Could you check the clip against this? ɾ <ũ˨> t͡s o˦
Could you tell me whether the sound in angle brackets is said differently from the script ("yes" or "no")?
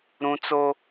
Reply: yes